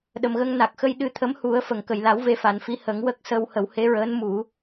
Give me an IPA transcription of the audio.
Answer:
ɗ ə˨˩ m ɣ ə˧ ŋ n a˨˩ k̚ x ə˧ j ɗ ɨ˧ t̪ʰ ə˧˥ m h u˨˩˦ ə̯ f ə˨˩˨ ŋ k ə˨˩ j l a˨˩˦ w v e˧˥ f a˨˩ n f i˧˥ h ə˨˩˦ ŋ w ə˦˥ k̚ s ə˧ w h ə˨˩˦ w h e˧˥ ɹ əː˧˥ n m u˨˩˦

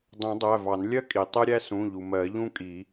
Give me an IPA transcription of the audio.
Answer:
dˤ ũ˨˩˦ dˤ æ˩˧˩ v ɑ˨˩˦ n lʲ ɜ˥ kʼ i˩ tˤ ɛ˥ ɾʲ æ˥ s ũ˩˧˩ ʎ u˩ m ɜ˨˩˦ ʎ ũ˥ kʼ i˨˩˦

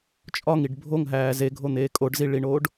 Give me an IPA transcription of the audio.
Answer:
t͡ʃʼ ɒ ŋ i ɖ bʱ o ŋ ɦ æː z e ɡʱ o n̪ eː kʼ o ɖ z i ɭ i ɳ oː ɖ

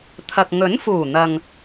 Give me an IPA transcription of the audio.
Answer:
t̪ʰ ɐ˨ k̚ ŋ ɵ˨˥ n f uː˨˩ n̪ ɐ˨ ŋ

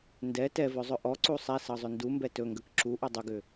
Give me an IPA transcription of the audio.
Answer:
n d ɛ t ɛ v ɵ zˤ ɵ ʔ ɔ ǀ u sˤ ɛ s ɤ zˤ ʏ n d u m b ɛ t ɵ ŋ ɡ ə k ǁ u ʔ u dˤ ʏ ɡ ʏ

